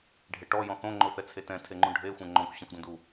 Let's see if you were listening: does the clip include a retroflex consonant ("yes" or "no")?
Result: yes